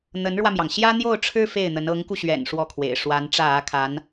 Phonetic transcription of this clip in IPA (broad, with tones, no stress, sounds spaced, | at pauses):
n̪ ə˧˥ n ɻ w ä˧ m j ɑ˩ ŋ ɕ j ä˥ n̪ j o˥˩ ʊ̯ ʈ͡ʂʰ ɻ̩˥ f e˥˩ ɪ̯ n̪ ə˧˥ n ɤ˧˥ ŋ k u˧ ɕ ɥ ɛ̰˨˩ n ʂ w ɔ˥˩ kʰ w ḛ˨˩ ɪ̯ ʂ w a˧˥ n ʈ͡ʂ ä˥˩ ä˥ kʰ a˧˥ n